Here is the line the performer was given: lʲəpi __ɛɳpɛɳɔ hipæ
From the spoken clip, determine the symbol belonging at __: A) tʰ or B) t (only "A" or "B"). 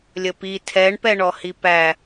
A